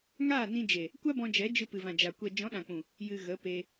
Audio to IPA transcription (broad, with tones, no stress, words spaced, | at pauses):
ŋaː˦˨nĩ˧d͡ʒe˨ | kʷa˦bɔ̃˧d͡ʒɛ˨˦ d͡ʒɨ˧pɨ˨vã˨d͡ʒa˨ kʷɛ˨ d͡ʒɔ̃˨˦ɗã˨k͡pũ˨ | jɨ˨ ɣə˨˦pe˧